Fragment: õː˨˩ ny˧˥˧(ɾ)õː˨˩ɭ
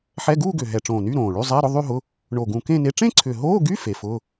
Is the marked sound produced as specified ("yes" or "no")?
yes